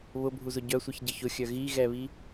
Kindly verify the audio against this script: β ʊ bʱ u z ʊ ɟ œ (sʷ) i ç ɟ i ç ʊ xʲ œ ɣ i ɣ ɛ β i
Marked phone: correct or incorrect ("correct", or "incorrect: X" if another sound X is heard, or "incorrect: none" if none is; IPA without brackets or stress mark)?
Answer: correct